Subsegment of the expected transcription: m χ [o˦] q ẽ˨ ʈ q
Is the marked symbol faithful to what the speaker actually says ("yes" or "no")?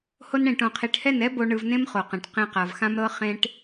no